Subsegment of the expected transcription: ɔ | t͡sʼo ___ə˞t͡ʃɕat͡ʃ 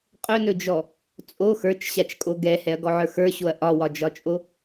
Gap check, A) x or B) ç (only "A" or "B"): A